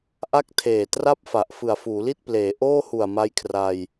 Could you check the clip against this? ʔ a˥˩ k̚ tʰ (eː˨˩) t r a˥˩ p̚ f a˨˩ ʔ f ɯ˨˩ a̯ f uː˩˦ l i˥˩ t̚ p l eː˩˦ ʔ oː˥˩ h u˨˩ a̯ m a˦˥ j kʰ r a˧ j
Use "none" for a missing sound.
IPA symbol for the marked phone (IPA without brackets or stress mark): eː˨˩